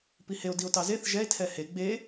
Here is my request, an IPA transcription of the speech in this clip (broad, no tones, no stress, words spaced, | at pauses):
piheo̯ dio̯tɑzeθ ʒɛe̯ tʰɛhe ɡ͡be